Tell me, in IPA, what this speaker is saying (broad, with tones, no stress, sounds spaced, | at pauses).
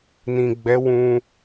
n ĩ˨ ɡ͡b ɛ˨˦ w ũ˧